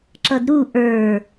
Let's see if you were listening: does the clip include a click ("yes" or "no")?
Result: yes